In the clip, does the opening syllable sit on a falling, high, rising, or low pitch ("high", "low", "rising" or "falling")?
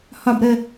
falling